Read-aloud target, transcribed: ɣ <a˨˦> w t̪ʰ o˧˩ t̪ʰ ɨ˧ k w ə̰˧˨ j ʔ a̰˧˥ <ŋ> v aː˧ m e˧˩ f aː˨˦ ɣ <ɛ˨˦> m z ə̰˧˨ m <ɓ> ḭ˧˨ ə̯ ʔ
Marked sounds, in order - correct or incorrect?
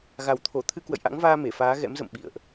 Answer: incorrect, correct, incorrect, correct

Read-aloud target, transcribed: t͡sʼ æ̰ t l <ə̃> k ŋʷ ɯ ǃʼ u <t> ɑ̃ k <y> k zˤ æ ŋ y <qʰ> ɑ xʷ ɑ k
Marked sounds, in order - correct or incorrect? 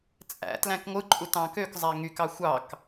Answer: incorrect, correct, incorrect, incorrect

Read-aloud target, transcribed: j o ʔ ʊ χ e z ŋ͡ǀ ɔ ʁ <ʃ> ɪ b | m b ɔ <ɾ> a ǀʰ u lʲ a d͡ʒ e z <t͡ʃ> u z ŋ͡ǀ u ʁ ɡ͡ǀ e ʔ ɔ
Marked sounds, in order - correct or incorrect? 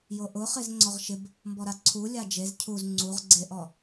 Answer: correct, correct, incorrect

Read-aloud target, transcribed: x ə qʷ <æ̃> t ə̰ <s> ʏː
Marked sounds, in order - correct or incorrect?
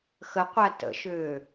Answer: incorrect, incorrect

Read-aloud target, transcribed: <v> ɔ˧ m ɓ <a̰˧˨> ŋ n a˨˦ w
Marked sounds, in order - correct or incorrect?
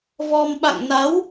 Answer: correct, correct

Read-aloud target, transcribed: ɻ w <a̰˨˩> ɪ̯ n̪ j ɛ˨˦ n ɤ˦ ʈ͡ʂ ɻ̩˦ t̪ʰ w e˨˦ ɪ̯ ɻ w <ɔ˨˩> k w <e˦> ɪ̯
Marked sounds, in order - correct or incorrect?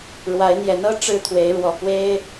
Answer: incorrect, correct, correct

